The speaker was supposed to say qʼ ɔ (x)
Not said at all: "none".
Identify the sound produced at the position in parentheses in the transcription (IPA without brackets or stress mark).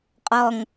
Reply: ŋ